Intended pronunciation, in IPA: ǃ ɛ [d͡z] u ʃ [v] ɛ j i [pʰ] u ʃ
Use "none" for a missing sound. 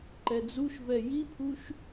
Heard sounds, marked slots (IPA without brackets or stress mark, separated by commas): d͡z, v, pʰ